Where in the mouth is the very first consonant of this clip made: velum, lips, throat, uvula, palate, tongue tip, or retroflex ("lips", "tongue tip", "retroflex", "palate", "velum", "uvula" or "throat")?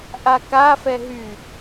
throat